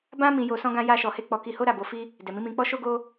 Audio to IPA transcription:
b ã˦ m ĩ˧ j o˧ s ɔ̃˦ ɡ ã˦ j a˦ ʃ ɔ˧ h e˦ k͡p ɔ˧ k i˧ h o˦ ɾ a˦˨ b o˧ f i˦ | d ɛ˨ m ĩ˨˦ m ĩ˧ k͡p ɔ˦ ʃ o˦ ɡ o˦

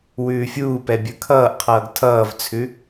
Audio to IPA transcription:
w ʉː fʲ uː p ɛ bʲ ə˞ kʰ ʌː ʔ qʰ ʌː ɡ tʰ ʌː v t͡sʰ ʉ

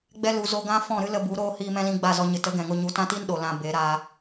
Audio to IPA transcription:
ɡ͡b ɛ˧ l u˨ z o˧ ɡ ã˦ f ɔ̃˦˨ ɾ ɨ˦ l ə˧ b u˨˦ ɾ oː˦ h iː˧ m ɛ̃˦ l ĩ˧ ɡ͡b a˦˨ z ɔ˧ ɲ ɨ˨ t ə˨˦ ɡ ɛ̃˨ ŋ o˧ ɲ u˨˦ t ã˦ t i˦ n ɗ o˨ l ã˧ b e˨˦ ɾ a˧

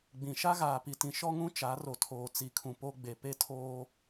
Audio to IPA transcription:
ɡ͡b ĩ˨ ʃ a˦ ɣ aː˨ p i˨ t ĩ˨ ʃ ɔ˦ ŋ ũ˦ t͡ʃ a˨˦ r o˨ tʰ oː˨ t͡s i˨ kʰ ũ˨ p o˦ ɡ͡b e˨ p e˦ tʰ oː˦

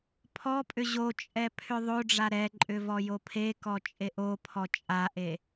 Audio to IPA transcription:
pʰ ɔ pʼ ʏ ʑ o t͡ʃʼ ɛ pʰ ʏ ðˤ o ɖ͡ʐ a ɾ ɛ ǃʼ ʏ v ɔ j o pʰ e k ɔ t͡ʃʼ e ʔ o pʰ ɔ t͡ʃʼ a ʔ e

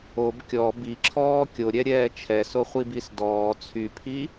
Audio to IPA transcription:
o b kʲ ɔ b i ǁʰ ɔː kʲ o ɾʲ ɛ ɾʲ ɛː t͡ʃʰ ɛ s o χʷ i b i s d ɔː t͡sʰ y pʰ i

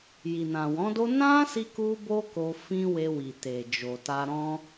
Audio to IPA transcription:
j i˨ n ã˨ w ɔ̃˨˦ d o˦ n ã˦ s i˦ k u˦ b o˦ k o˧ f ĩ˧ w e˧ w i˨ t e˨ d͡ʒ o˨ t a˧ ɾ ɔ̃˧

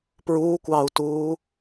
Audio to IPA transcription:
p ɹ uː kʷ ɑː u̯ t uː

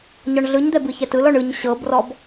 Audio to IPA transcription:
ɲ ɔ ɳ ɮ ɯ ɲ d̪ ɛ b ɯ ç ɛ t ɯ l ɔ ɳ ɯ ɲ ɕ ɤ b r ɔ b

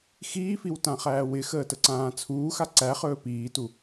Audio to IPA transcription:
x iː f i w t ã χ æː w ɪ x əː t ə ǀ ãː t͡sʰ uː x a ǀ æ χ ɵː p iː t u

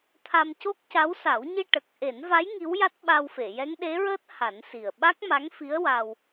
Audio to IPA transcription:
t̪ʰ a˧ m c o˦˥ k̚ c a˧˥ w s a˨˩˦ w ɲ i˧ ʈ ə˨˩ k̚ ʔ e˨˩˦ n v a˧˥ j ŋ i˧˥ w j a˦˥ t̚ ɓ a˧ w f e˨˩˨ j ɛ˧˥ ŋ ɗ e˧˥ ɹ əː˦˥ t̚ h a˨˩˦ n s i˨˩ ə̯ ɓ a˦˥ k̚ m a˧˥ ŋ f i˧˥ ə̯ w a˧ w

